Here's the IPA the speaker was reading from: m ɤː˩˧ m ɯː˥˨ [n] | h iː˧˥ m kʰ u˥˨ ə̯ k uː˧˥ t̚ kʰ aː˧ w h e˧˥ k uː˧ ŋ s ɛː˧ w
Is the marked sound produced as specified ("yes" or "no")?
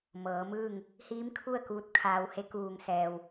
no